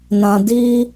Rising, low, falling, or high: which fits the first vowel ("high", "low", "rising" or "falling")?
low